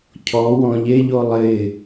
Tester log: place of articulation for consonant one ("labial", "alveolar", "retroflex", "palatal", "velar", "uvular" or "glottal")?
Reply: palatal